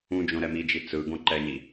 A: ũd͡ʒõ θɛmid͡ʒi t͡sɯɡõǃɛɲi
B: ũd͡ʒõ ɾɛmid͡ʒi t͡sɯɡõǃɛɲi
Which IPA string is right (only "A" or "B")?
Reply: B